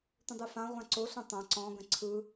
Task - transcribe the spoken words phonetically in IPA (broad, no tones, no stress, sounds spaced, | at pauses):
tʷ ə̃ dˤ ɯ f ã ʁʷ ã ǀ o ɬ õ tˤ ã ǀ ɔ̃ ɡ ə̃ ǀʰ ɯ